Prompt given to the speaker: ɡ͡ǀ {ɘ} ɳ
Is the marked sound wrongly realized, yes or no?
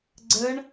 no